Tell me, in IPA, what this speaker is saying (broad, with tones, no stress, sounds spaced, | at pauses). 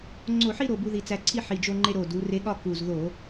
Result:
ŋ͡ǀ o˧˩˧ ħ i˥˧ ɾ o˨˩ b u˧ ð i˨˩ t͡s æ˧ ǀʰ i˥˧ ħ i˨˩ d͡ʒ o˧ ŋ͡ǃ e˧ ɾ o˨˩ d u˩˧ r e˧˥ ɠ ɒ˥˧ k u˨˩ z ð o˧˩˧